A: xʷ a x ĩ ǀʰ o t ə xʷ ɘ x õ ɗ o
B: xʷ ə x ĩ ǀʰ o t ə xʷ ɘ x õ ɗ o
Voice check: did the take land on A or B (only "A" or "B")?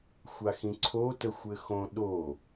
A